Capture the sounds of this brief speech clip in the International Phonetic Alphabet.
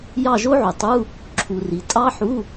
jɑ˦˨ʒo˦˥ʕu˩tˤu˧˥˧ | ǁʰu˩ ri˩ tʼɑ˦˥ħu˧˥˧

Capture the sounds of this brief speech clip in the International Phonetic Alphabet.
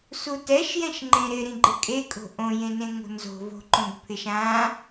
sutɛʃ jɛ̃ʃŋ͡ǃẽɾɪ ɾĩɡ͡ǃɪkʼekʼo̤ ʔõjẽnẽ ŋo̤nzo̤ vo̤ǃõɡpʰɪʃ ã

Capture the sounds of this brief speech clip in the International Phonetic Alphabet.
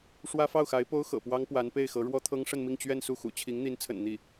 ʂwä˥fɑ˥˩ʊ̯xa˧˥ɪ̯ po˥ʊ̯xɤ̰˨˩pwɑ˥ŋ pwa˧˥npe˥˩ɪ̯xɤ˧˥ ɻwɔ˥t̪ʰɤ˥ŋ ʂə˥˧nmi˥˧ŋ t͡ɕɥɛ˥˧nsu˥˩xṵ˨˩ t͡ɕʰi˧˥ŋn̪i˧˥nt͡sʰə̰˨˩n n̪i˥˩

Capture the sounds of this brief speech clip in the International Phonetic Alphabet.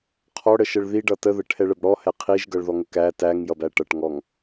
qʰɔɽəʃəɭ ðiɖʌ təðəʈʰɛɭəb ɽɔhɛ qʰiʒɡʌɭðɔŋə kæ tæŋjʌbæ ʈʌʈŋɔŋ

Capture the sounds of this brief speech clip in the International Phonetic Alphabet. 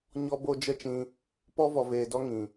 ɲɔ˦bo˦ d͡ʒə˦t͡ʃĩ˧ | pɔ˦vɔ˨veː˨dɔ˦ ŋĩ˨

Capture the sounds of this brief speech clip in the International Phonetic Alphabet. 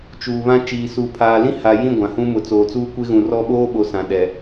t͡ʃuː˨βã˦ t͡ʃiː˨suː˨pʰaː˨ lĩ˦ha˨jĩ˦˨ ɡʷã˨hũ˦mʊ˨˦ t͡soː˨t͡suː˦kʷe˦ɣũ˨ rɔ˦ɓoː˦ɓo˨ sã˨ɗɛ˨

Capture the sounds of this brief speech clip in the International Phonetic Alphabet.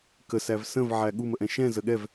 kə sævsə̃v ʕæɠu məʔɛ̃ʃɛ̃ zəɠɛv

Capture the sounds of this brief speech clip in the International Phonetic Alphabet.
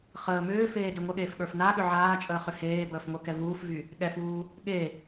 χəː mʏːfeː dyŋʷəɠeːf ɠə˞fnaɠʏ ʕaːt͡ʃʼəː χʏheːbəːf ŋʷə˞kɛvuːfvy | ɠɛfuː | ɠe

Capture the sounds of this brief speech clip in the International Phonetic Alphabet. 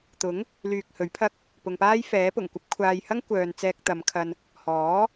t̪ʊ˨˥ŋ | lyː˧k̚hɵ˨˥ɥpʰɐ˥k̚ | pʊ˨ŋpaː˥j fɛː˨˥pʊ˨˩ŋkʷɐ˥p̚ kʷʰaː˧j hɐ˥ŋ kʷœː˨n t͡sɛː˧k̚t̪ɐ˨˧mkʰɐ˧n | hɔː˨˥

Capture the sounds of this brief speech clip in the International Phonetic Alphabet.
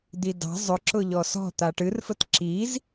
d̪idɑ̤ zˤʊǁʊ ʎɔsɔ̤ t̪aʈɨrfət ǁiz

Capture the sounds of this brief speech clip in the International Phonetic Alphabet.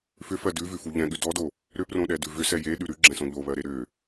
fʏfɜ dʉvʉfu ʎɛ̃ɠʉ dɔdo | ɾʏprõɗɛdʉ vʏsɛ jeɗʉ ɾʉɡ͡ǁɛ̃sõ ʎoβɜɾe ɾʏ

